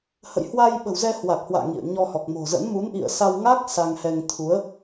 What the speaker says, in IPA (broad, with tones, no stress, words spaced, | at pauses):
hə̰˧˨jhwa˧j ɓə̤˨˩wzɛ˧ hwa˨˩k̚hwa̰ː˧˨ ŋḭ˧˨ə̯ ɲɔ˧hɔ˨˩k̚ mo̤˨˩zə̰˧˥n mu˨˦nʔḭ˧˨ə̯sa˧wŋa˦˥k̚ sa˧ŋhɛ˧ŋ t̪ʰu˨˦ə̯